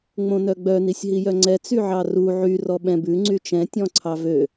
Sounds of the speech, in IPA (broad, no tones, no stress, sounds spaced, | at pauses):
ŋ͡m õ n œ ɡ͡b œ n i sʲ ɦ i j œ ŋ͡ǀ ɛ t͡s y ʕ ɑ r u ʕ y r ɔ ɓ ɛ̃ b ʉ ŋ͡ǀ y t͡ʃ ɛ̃ tʲ ɔ̃ ǀʰ ɑ v ø